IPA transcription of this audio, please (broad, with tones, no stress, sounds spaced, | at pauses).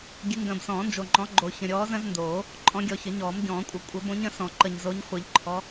ɡʲ ɨ˨˦ ŋ ɡ ə̃ː˨ b s ɔ̃ː˨˩˦ n d͡ʒ o˨ ŋ͡ǃ ɔ̃˨˦ ɡ͡ǃ o˨ ç ə̃˨ ɾʲ ɔː˨˦ z ə̃˨˦ z n d oː˨˩˦ | ǃʼ ɔ̃˨˦ ɡʲ ɔ˨ ç ə˨˩˦ ɲ ɔː˨˩˦ m ɟ ɔ̃ː˨˩˦ kʷʼ ə˨˩˦ kʷʼ ə˨˩˦ b õ˨˦ ɲ ə̃˨˩˦ s ɔ̃˨˩˦ ǃ ə˨ ɲ z o˨˦ ɲ χʷ ɨ˨˩˦ ʎ ǃʰ ɔ˨˦